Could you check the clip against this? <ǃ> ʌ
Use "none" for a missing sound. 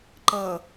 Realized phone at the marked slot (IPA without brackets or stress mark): ǃ